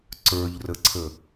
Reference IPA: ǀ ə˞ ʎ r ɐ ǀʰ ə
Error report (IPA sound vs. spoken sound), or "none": ɐ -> ə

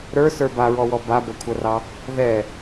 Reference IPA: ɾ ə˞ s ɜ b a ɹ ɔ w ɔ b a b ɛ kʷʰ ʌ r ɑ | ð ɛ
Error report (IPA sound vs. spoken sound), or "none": ɜ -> ə˞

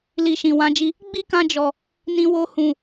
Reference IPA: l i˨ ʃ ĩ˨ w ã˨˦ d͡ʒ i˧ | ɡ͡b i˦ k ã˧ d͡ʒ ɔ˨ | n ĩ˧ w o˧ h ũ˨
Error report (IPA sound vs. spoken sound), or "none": none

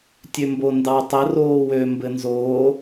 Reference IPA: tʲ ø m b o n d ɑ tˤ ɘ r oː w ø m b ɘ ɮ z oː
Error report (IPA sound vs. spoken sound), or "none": ɮ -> n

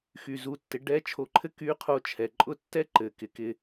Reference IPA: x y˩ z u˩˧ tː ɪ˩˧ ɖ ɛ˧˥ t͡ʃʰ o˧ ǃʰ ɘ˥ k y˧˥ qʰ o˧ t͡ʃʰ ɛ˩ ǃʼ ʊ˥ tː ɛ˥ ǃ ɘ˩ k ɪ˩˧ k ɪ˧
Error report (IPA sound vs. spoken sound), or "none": none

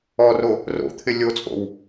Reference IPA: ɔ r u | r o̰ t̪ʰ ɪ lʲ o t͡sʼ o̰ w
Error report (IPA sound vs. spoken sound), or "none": u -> o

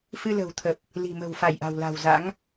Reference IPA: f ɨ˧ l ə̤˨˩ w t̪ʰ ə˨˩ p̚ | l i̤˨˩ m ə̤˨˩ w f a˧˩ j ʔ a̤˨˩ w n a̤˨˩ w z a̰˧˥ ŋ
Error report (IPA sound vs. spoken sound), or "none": n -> l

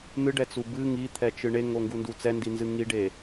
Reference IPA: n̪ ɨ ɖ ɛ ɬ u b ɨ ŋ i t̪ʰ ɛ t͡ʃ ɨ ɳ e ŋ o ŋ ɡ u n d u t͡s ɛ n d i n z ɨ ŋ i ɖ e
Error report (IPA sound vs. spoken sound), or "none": ɬ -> t͡s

